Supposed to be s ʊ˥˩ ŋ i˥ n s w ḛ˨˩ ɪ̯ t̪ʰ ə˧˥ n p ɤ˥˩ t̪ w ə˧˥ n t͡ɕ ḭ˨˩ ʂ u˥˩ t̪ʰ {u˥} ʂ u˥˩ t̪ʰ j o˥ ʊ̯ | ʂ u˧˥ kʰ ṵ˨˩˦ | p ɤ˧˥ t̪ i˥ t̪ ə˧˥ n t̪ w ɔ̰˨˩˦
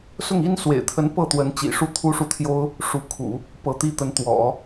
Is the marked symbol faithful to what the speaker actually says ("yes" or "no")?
yes